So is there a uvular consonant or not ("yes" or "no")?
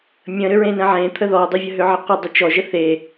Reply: yes